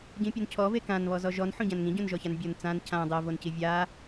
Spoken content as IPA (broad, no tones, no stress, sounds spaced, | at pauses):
ɟ ĩ pʲ o n cʰ ɔ v e k ã n β ɔ z ɔ ʒ ɔ n ħ õ ɟ ã n ŋ ĩ ɟ õ n ʒ ɔ ç a n bʲ o n t͡s ã n cʰ ã dˤ ɜ v o n c i vʲ a